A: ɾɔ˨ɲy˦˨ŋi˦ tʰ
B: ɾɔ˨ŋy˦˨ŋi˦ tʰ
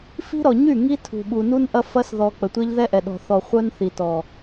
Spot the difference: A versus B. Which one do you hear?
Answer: A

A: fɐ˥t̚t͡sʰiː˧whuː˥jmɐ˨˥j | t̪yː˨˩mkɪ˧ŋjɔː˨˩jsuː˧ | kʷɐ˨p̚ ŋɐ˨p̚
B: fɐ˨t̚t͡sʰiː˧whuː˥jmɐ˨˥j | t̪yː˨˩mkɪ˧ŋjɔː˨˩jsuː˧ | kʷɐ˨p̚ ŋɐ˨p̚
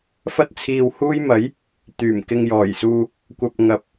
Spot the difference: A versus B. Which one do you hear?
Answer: A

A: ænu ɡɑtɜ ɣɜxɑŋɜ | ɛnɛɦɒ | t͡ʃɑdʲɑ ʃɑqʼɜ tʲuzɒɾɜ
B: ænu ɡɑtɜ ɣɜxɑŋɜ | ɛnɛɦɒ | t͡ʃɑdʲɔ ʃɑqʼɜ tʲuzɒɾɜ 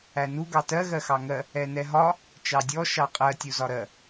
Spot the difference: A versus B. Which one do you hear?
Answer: B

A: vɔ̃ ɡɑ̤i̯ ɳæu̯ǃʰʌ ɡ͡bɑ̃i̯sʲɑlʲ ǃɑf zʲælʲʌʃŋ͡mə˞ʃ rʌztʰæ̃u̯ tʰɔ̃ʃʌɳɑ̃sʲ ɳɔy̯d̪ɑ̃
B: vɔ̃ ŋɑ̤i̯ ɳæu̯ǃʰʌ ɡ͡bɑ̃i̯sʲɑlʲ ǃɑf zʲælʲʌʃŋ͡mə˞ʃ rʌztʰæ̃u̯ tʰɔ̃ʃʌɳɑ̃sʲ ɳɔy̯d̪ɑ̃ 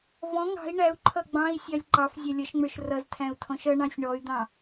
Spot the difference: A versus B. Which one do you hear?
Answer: B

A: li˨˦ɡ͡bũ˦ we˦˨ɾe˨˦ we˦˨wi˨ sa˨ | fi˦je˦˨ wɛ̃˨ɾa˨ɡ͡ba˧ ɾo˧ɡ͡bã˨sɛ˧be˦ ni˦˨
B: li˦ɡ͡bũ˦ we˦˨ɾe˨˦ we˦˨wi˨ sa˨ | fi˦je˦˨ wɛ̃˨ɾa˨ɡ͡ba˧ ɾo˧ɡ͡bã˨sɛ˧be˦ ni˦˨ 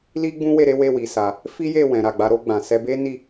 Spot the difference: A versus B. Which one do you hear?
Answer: B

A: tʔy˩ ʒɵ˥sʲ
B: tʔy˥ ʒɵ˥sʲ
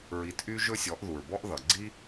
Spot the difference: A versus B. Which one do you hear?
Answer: B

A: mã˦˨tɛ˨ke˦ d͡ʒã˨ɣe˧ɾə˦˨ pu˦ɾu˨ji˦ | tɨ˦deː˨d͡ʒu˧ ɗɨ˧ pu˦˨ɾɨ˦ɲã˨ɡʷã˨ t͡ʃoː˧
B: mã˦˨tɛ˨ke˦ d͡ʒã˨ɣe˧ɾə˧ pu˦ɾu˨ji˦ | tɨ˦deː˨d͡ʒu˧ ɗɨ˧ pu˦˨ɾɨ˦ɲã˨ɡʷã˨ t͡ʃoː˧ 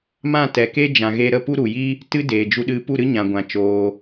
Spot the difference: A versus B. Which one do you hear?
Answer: A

